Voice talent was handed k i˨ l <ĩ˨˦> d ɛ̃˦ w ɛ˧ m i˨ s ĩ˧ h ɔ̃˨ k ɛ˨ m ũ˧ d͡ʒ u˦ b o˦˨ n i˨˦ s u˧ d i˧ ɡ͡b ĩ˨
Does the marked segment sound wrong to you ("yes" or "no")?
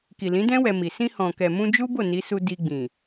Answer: no